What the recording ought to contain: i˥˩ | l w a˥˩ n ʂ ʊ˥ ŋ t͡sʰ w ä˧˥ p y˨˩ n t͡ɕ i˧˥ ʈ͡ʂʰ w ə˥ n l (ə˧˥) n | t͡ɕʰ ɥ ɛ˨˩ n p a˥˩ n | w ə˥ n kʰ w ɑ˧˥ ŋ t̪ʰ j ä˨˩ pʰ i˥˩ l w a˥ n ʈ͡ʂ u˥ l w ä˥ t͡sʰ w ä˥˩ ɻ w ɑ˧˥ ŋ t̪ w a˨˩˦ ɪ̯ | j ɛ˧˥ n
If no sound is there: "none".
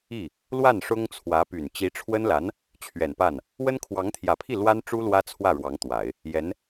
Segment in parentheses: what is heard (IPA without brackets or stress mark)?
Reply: a˧˥